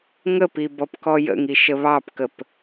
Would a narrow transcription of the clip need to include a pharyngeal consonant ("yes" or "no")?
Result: no